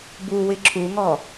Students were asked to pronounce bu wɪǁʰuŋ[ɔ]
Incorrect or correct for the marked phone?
correct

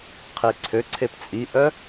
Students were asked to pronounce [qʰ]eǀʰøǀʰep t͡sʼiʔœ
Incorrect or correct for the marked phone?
correct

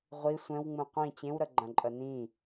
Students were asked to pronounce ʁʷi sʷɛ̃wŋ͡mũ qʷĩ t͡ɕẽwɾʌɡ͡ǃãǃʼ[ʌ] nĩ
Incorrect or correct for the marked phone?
correct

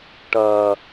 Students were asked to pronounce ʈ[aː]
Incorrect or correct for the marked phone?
incorrect: ɐː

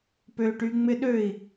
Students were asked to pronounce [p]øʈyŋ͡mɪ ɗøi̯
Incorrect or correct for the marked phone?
correct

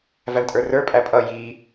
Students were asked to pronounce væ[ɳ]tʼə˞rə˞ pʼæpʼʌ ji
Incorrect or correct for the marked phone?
correct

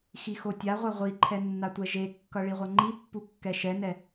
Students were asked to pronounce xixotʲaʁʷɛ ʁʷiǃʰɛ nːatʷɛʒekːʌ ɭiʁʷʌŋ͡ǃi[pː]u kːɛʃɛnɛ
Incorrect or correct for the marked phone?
correct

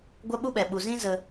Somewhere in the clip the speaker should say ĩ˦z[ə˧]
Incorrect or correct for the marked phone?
correct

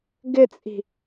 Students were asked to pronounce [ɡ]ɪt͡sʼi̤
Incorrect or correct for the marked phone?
correct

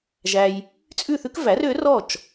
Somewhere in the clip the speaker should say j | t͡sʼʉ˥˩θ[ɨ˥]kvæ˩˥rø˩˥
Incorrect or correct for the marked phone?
incorrect: ʉ˥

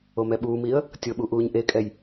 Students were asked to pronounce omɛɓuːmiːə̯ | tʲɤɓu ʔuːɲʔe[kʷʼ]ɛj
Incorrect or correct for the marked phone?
incorrect: kʼ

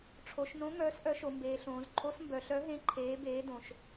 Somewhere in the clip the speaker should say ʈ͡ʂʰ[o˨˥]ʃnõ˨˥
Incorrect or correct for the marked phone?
incorrect: o˩˧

